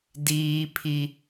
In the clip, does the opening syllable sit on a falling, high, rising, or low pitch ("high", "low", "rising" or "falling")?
high